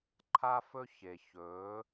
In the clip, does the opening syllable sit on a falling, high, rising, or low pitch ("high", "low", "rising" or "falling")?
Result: high